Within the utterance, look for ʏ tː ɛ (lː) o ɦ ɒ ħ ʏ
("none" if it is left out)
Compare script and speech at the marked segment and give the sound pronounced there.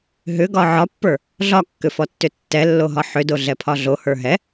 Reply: lː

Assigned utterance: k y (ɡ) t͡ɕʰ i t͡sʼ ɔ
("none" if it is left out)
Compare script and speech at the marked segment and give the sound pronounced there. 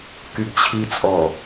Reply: ɡ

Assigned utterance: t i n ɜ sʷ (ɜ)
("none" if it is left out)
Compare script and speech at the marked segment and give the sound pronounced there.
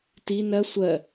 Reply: ɜ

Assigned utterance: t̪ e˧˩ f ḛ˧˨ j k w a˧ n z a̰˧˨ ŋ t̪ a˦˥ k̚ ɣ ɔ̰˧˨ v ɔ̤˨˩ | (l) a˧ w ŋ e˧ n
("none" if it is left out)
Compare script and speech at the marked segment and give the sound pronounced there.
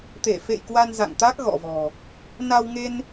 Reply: n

